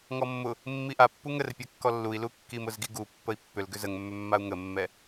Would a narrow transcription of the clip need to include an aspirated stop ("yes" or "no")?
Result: no